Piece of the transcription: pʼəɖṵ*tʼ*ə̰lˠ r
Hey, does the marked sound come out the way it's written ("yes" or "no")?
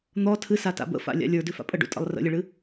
yes